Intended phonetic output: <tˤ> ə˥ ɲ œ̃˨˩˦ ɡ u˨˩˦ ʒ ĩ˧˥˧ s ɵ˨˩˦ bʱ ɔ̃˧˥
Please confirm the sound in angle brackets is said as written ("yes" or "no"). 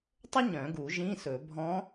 yes